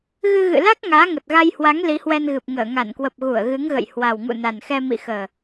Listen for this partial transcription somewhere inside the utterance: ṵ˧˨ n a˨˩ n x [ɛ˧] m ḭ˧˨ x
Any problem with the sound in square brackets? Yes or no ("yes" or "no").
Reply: no